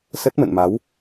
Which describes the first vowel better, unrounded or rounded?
unrounded